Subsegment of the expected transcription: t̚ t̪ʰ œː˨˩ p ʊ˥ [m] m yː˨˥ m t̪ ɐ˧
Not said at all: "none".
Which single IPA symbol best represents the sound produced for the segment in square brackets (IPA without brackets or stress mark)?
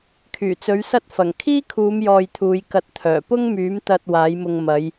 ŋ